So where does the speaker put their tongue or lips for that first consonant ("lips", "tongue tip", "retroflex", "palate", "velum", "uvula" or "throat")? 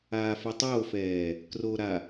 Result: lips